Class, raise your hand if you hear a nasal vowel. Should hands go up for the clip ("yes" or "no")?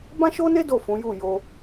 yes